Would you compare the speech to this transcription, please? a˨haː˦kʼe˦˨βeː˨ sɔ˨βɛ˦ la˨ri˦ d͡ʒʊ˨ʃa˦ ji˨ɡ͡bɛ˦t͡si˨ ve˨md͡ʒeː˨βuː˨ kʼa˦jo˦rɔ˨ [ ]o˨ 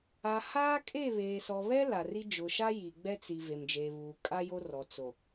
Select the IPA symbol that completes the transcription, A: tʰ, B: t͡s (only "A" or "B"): B